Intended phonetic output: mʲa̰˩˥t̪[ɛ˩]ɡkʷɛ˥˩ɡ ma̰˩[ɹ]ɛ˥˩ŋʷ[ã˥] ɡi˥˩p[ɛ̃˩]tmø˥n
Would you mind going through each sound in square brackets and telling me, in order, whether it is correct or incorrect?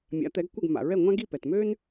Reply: incorrect: ɛ˩˥, correct, correct, incorrect: ɛ˩

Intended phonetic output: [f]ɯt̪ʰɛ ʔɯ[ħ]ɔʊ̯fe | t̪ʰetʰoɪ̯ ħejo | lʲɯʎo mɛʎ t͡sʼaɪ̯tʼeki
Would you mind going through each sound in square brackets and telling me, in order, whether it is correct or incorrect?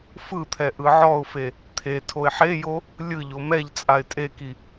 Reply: correct, incorrect: ʕ

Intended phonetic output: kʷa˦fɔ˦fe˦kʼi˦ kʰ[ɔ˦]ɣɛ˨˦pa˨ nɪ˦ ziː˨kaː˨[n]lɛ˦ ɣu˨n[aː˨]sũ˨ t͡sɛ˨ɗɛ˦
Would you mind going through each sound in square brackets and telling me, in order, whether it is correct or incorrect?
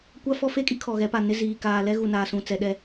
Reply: incorrect: ɔ˨, incorrect: none, correct

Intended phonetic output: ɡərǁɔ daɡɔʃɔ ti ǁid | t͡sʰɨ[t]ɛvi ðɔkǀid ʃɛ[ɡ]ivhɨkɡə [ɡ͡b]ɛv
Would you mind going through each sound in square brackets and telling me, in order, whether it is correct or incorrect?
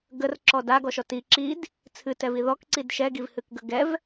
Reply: correct, correct, incorrect: ɡ

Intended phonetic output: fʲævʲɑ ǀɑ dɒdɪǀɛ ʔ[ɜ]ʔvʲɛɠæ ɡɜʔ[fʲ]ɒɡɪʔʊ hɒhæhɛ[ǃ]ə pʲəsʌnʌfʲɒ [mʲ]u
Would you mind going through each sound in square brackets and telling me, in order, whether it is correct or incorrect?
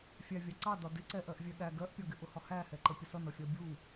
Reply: correct, incorrect: pʲ, correct, incorrect: bʲ

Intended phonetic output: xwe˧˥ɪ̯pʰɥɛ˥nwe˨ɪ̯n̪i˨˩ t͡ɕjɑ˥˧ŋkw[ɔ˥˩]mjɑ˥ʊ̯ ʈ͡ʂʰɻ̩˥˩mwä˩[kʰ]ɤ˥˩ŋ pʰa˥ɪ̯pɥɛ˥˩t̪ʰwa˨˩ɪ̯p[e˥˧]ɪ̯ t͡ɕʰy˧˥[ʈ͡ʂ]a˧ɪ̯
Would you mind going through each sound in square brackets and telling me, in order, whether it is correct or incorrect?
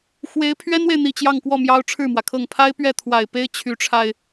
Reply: correct, correct, incorrect: e˥, incorrect: ʈ͡ʂʰ

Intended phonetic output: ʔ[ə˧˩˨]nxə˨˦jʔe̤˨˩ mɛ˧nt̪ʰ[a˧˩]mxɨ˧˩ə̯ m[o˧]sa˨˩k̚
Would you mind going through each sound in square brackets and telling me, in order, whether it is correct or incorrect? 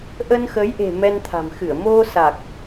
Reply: incorrect: ə˧, incorrect: a̤˨˩, correct

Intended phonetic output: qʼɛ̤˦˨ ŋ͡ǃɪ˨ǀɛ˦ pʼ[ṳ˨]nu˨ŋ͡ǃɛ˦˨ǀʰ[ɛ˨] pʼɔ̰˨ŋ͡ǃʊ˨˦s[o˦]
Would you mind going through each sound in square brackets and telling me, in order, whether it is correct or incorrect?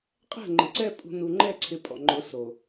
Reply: correct, incorrect: ɪ˨, incorrect: o˨

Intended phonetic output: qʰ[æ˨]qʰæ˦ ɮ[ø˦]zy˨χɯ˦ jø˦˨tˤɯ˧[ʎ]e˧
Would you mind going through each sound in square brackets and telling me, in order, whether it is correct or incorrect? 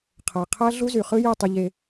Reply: correct, incorrect: u˦, correct

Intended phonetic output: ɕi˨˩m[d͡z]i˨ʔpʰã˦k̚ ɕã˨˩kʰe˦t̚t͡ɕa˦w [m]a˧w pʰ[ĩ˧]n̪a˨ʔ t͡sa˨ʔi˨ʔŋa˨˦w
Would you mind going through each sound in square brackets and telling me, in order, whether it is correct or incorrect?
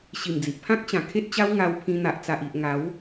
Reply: correct, incorrect: ŋ, correct

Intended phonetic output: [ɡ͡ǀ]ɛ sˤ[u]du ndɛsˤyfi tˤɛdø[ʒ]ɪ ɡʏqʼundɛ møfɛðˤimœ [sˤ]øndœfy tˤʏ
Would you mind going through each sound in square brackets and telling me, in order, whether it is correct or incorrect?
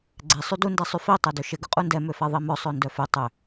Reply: correct, incorrect: y, incorrect: ʃ, correct

